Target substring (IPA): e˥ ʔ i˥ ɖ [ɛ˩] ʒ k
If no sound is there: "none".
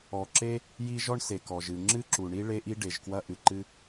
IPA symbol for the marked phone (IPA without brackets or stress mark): e˩